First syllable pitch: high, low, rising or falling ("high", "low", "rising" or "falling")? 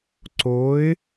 rising